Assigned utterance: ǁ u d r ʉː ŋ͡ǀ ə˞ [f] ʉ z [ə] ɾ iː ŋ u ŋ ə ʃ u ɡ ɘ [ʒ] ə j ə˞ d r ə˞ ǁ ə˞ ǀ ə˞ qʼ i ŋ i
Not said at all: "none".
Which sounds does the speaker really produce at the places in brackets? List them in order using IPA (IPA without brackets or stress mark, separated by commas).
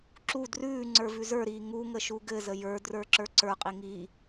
v, ə˞, z